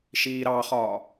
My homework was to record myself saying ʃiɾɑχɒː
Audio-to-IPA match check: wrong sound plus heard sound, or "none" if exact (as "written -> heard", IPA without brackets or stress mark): i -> iː